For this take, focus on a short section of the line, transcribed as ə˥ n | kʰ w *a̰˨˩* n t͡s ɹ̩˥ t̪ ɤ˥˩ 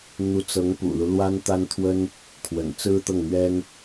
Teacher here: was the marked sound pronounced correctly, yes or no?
no